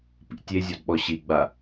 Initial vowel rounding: unrounded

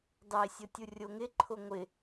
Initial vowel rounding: unrounded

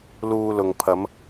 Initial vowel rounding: rounded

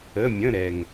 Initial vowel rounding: unrounded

